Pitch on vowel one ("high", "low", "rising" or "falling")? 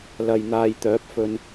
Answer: low